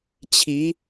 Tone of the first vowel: rising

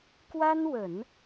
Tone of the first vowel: high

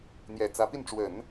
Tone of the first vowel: low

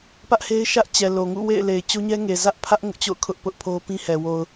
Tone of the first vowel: high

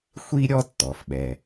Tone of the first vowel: high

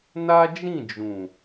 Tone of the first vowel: high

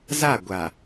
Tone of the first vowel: falling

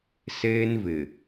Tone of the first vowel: high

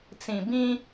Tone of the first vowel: low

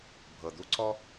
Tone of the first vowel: low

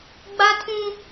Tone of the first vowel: high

